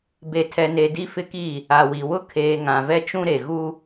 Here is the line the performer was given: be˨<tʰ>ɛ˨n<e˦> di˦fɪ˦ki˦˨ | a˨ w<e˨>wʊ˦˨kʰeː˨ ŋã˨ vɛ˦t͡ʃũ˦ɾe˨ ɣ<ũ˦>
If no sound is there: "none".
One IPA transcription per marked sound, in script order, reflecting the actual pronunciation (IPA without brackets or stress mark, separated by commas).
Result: tʰ, e˨, i˨, u˦